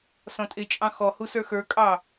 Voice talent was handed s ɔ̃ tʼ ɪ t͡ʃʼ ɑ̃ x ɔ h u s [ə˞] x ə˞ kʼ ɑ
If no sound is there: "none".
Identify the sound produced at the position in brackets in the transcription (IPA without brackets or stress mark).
ə˞